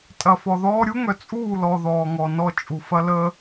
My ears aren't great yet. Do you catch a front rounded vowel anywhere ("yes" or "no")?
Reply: yes